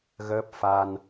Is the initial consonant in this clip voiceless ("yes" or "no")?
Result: no